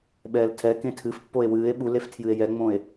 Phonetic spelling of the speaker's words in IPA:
ɓ ɛː l tʰ ɛ k ẽ tʰ ɨ f pː o e̯ w ɨː e̯ ɓ u l e f tʰ j ɨ e̯ j ɛ ŋ͡m õ e̯

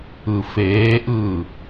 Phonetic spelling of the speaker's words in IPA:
ɯ f eː ʔ ɯː

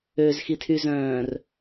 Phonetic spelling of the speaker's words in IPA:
ø z x i tʰ y z œ̃ː r

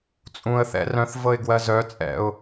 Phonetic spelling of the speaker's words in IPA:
t͡sʼ ũ ə̯ θ ɛ̰ r œ̃ θ v ɤ ɪ̯ ɡ w ɜ z œ t͡sʼ ɛ̰ ʊ̯

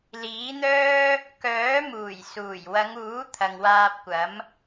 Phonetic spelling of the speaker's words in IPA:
l iː˨˥ n̪ œː˥ | k œː˨˥ m uː˨˩ j s uː˨˩ j w ɐ˨˧ ŋ uː˨˥ t̪ʰ ɐ˨ ŋ w aː˧ p̚ kʷ ɐ˨˥ m

